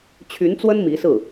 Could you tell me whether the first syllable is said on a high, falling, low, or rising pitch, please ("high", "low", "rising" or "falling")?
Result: rising